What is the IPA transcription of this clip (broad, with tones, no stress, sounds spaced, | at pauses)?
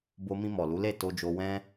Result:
b o˧ m ĩ˧ m ɔ˨ l u˨˦ l e˦˨ t o˧ d͡ʒ o˧ w ɛ̃˧